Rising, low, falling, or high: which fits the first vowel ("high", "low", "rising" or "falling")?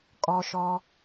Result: low